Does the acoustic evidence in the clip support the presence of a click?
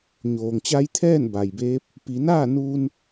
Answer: no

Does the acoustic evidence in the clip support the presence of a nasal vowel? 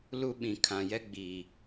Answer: yes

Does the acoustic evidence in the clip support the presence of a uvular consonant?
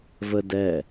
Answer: no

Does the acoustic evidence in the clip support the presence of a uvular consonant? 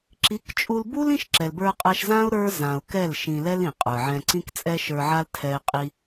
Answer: yes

